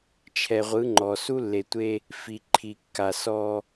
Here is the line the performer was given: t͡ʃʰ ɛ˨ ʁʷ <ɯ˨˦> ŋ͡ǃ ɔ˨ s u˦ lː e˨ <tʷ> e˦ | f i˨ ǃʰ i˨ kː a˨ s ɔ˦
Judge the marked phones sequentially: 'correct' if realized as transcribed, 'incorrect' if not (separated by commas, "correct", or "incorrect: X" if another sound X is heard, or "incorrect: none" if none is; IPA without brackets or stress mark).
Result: correct, correct